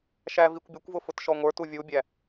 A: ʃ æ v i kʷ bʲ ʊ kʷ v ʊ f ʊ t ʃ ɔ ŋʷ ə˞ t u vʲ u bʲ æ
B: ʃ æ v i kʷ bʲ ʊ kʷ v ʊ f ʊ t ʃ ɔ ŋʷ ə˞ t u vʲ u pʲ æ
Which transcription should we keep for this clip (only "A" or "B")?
A